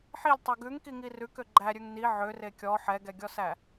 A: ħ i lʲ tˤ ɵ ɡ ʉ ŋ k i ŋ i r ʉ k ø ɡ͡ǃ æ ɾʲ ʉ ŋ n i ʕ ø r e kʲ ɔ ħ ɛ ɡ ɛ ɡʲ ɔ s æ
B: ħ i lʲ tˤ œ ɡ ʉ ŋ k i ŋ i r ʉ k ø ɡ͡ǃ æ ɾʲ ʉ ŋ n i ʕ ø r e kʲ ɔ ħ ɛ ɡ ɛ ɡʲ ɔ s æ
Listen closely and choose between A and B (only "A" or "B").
B